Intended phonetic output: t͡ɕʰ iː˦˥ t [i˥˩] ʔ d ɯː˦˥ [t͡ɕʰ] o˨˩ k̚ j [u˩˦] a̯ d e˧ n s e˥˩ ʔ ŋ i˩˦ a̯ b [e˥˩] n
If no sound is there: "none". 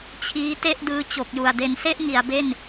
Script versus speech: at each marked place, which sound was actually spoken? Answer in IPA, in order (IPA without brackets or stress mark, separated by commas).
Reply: e˥˩, t͡ɕ, u˨˩, e˥˩